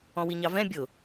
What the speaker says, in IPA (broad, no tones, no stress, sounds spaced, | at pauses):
ɔ̃ w i ɲ ɑ v ɛ̃ bʲ ʊ